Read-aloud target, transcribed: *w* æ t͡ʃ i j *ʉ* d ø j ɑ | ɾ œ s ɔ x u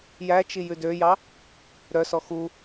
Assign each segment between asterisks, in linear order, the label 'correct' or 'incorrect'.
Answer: incorrect, correct

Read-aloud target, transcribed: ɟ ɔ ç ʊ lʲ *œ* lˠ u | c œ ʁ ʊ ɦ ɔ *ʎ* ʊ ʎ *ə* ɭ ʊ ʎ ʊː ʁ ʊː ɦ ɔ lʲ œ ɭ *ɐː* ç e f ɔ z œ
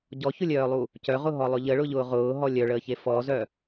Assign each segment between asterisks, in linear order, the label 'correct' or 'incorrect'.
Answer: incorrect, incorrect, correct, incorrect

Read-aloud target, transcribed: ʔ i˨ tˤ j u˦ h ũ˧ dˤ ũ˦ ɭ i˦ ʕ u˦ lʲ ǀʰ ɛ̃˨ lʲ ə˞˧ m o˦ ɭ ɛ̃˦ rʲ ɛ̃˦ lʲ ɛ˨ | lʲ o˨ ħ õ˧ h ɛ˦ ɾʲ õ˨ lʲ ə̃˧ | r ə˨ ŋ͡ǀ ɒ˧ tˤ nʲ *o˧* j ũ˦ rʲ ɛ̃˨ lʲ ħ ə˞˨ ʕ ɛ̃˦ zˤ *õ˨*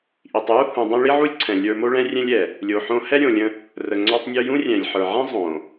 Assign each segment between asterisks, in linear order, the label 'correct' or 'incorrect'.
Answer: correct, correct

